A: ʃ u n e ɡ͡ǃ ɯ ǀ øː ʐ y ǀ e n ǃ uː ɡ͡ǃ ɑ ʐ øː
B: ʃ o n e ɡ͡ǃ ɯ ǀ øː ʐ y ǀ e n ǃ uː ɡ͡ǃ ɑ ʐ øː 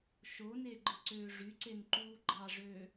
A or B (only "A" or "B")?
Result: B